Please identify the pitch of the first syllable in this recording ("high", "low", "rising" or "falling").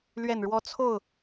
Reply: low